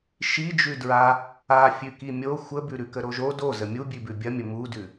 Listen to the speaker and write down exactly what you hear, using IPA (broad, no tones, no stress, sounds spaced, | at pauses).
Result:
ʃ i d͡ʒ ʉ d ɹ a | a fʲ ʉ k i mʲ o xʷ ə b ʉ ɾ ʉ k ə ɾ o ʒ o d o z ə mʲ u bʲ ʉ b ʉ bʲ ɐ mʲ ə m u d ʉ